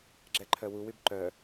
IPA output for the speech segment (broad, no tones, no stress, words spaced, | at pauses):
ɡ͡ǁɛǃʰœwuwyb ǃœ